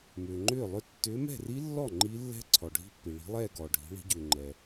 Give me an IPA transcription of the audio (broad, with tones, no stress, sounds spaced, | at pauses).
m ʏː˩ ŋ͡ǃ ʏː˥˩ lˠ ʏ˥˧ tː ʏː˨˦ m ɛ̤˥˩ r i˦˥ lː ɔ˥˩ ŋ͡ǃ i˦˥ lː ɛ̤˦˥ ǀʰ ɔ˩ ɖʱ i̤˦˥ pː i˩ ɭ i̤˨˦ lˠ ɛː˥˧ ɡ ɔː˩ ɖʱ i̤˨˦ ɭ i̤˨˦ ɟ ʏː˩ ŋ͡ǃ ɛ˩